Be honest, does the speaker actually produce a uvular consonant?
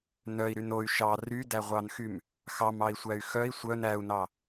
yes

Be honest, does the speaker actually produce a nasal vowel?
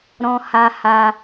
yes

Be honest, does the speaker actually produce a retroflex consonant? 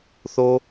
no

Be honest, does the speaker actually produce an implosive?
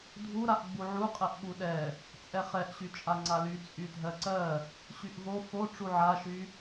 yes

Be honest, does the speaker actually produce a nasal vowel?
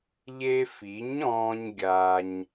yes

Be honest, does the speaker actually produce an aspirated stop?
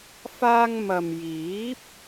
no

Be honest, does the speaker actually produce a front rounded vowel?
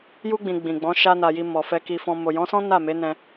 no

